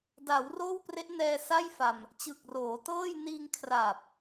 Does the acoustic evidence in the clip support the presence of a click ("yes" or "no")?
no